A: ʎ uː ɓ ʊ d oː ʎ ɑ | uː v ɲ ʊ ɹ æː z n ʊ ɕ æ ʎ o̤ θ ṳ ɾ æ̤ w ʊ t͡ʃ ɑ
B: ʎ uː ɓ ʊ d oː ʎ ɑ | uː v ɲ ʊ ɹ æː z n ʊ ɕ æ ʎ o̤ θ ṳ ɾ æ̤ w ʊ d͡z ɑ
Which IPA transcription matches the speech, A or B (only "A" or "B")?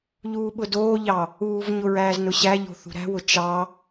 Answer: A